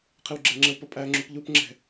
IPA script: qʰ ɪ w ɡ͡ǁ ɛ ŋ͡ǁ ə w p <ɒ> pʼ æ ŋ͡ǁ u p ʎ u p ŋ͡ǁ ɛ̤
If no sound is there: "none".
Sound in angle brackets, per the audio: ʌ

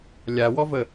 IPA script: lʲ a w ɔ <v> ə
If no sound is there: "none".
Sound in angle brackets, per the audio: v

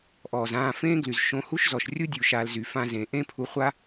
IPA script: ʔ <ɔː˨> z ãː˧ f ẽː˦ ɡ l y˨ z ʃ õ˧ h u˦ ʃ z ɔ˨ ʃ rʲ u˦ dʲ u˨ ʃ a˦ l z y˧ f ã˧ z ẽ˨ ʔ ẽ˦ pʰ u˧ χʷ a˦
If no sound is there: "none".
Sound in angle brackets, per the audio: ɔː˨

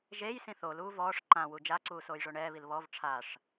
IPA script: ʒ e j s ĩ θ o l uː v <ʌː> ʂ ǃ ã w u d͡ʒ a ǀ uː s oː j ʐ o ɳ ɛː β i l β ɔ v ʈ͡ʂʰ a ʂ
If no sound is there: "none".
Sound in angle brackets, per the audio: ɔː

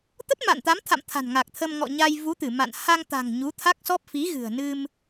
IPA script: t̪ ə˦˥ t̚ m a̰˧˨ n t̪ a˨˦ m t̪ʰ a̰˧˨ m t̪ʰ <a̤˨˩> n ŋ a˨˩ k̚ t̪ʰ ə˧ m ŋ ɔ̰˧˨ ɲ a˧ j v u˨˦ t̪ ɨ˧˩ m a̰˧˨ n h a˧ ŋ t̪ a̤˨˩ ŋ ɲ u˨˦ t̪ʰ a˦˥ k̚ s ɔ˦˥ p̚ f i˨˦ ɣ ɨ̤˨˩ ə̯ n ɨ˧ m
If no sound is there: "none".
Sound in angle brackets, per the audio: a̤˨˩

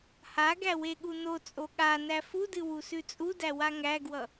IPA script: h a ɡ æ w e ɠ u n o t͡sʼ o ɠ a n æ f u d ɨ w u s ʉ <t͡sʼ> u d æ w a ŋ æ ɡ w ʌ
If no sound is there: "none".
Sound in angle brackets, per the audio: t͡sʼ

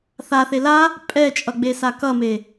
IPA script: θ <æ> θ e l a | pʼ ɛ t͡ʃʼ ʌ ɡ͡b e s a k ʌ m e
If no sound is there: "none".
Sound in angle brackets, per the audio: a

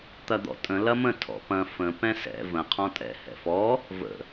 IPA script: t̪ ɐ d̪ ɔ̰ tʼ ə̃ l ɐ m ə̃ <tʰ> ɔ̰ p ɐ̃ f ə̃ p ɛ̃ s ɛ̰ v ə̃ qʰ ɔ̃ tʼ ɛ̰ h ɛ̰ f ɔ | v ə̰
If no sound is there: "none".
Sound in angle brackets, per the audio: tʰ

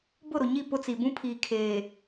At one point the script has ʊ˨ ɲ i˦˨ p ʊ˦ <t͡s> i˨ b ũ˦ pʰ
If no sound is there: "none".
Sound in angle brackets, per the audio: t͡s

